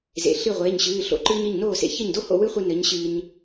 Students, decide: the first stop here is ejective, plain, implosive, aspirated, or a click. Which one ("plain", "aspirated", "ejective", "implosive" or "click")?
click